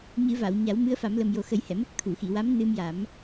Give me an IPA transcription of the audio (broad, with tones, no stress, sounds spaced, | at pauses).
ɲ ɨ˨˩˦ v a˨˩˨ w ɲ a˨˩˦ w m ɨ˧˥ ə̯ f a˨˩˦ m l ə˨˩ m j o˨˩ x ə˨˩˦ j h ɛ˨˩˨ m ə˦˥ k̚ t̪ʰ u˨˩˨ x i˨˩˨ w a˧˥ m n ɨ˧ m j a˨˩˦ m